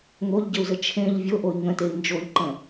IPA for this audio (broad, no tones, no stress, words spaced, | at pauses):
ŋoʎɟəu̯zə t͡ʃʰẽʎ vʲoʔoi̯ ŋə̃tei̯ nd͡ʒoʎǃə̃